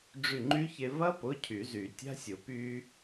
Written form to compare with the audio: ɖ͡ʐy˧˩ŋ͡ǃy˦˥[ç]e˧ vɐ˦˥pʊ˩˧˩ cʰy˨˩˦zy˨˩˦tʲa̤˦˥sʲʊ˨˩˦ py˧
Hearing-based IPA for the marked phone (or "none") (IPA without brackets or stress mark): ç